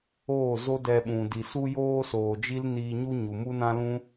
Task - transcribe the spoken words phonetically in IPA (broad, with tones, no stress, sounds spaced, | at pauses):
oː˦˨ z o˦ d ɛ˧ ɓ ũ˨ d i˨ s u˦ j oː˦ s oː˨ d͡ʒ i˦ l n iː˧ ɲ u˦ ɲ u˨ m u˦ n ã˦ l ũ˦